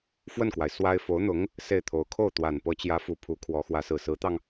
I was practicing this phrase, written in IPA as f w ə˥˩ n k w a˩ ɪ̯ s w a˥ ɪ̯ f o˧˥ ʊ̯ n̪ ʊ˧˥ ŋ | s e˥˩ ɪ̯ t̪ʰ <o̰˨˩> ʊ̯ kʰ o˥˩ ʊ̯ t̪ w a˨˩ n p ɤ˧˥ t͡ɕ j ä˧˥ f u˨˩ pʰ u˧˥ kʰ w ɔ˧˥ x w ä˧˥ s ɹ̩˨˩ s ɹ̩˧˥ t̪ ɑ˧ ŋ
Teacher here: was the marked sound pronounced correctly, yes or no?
no